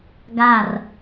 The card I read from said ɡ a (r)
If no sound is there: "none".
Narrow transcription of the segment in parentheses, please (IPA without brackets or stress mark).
r